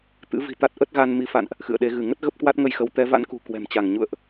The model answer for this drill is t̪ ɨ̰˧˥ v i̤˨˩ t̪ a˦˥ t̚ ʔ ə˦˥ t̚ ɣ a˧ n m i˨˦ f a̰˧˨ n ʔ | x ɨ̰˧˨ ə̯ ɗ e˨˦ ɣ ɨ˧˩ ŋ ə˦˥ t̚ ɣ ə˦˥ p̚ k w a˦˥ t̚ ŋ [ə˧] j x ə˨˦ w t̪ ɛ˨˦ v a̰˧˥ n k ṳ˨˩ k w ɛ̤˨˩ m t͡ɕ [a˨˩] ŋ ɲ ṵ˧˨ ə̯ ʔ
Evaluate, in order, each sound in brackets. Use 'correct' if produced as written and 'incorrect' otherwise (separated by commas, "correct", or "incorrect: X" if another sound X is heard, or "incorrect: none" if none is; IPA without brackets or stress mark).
correct, incorrect: a˧˩